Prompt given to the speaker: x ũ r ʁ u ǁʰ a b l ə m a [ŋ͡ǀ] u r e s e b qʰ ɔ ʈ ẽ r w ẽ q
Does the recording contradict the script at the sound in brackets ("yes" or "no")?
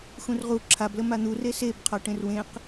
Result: yes